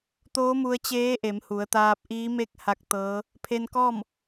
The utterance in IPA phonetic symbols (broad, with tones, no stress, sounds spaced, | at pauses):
t̪ oː˧˥ m u˧ ə̯ t͡ɕ eː˧˥ ʔ e˩˧ m h u˩˧ ə̯ t̪ aː˧ p̚ ʔ iː˧˥ m e˥˨ k̚ h a˧˥ k̚ t̪ ɤː˧˥ | pʰ e˧ n k ɔː˥˨ m